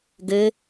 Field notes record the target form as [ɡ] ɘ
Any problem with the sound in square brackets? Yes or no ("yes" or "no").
no